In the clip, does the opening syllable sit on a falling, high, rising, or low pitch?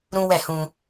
high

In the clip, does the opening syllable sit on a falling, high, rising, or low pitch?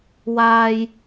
high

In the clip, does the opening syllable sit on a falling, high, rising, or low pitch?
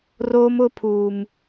high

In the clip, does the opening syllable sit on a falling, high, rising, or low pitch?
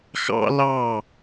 high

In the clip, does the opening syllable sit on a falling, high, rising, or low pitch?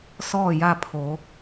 falling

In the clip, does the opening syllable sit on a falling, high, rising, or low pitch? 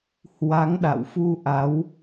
rising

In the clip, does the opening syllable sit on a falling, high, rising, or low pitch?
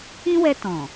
high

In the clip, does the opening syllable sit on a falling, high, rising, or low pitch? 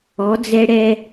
rising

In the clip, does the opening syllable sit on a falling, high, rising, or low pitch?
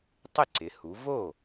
falling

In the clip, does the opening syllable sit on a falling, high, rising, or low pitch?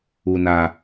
low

